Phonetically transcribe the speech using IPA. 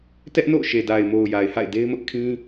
tɛ˦ʔ no̰˦˨ʊ̯ʃe˨da˨ɪ̯mo˨ʊ̯ ja˨ɪ̯ha̰˦˨ɪ̯ de˦ɪ̯mʊ˦ʔ kʰĩ˦

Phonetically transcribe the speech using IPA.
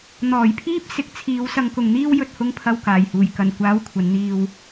n̪ɔː˨˩jpʰiː˥p̚ sɪ˨˥k̚t͡sʰiː˨˧w sɐ˧ŋkʊ˨ŋn̪iː˥w jɵ˨t̚hʊ˨ŋpʰɐ˨w kaː˨˩jhuː˨˩j kɐ˨˩nkʷaː˨˥w kʷʰɐ˨˥nn̪iː˧w

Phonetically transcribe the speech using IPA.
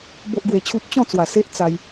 bo˦ʔɡwe˧t͡ɕʰu˦p̚ t͡ɕɔ̃˥˧t͡swa˨˩ se˦ʔt͡sa˧j

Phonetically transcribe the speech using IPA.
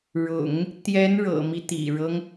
ɻʊ̰˨˩˦ŋ | t̪jɛ˧˥n ɻɤ̰˨˩mi˦ t̪ḭ˨˩ɻɤ˦ŋ

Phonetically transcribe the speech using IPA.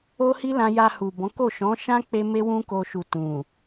o˦hi˦lã˧ ja˧hu˨bɔ̃˨˦ko˦˨ ʃɔ̃˨˦ʃã˦k͡pe˧ me˦wũ˦ko˧ʃu˨ tũ˨

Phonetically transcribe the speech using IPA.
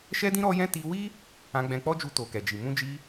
ʃɛ˦dĩ˦ ɾɔ˦jɛ̃˦ ti˧wi˦ | ã˧ɡ͡bɛ̃˧k͡pɔ˦d͡ʒu˧ to˨kɛ˨d͡ʒi˨ mũ˧d͡ʒi˧

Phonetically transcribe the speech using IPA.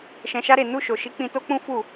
ʃɛ̃˧ʃa˦ɾe˦˨ nu˧ʃo˨ʃi˨˦ k͡pĩ˧to˦k͡pũ˦ fu˦˨

